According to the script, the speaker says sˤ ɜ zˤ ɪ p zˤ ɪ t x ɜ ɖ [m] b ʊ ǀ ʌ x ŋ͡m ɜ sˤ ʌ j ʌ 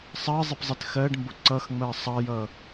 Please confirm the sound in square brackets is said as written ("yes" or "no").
yes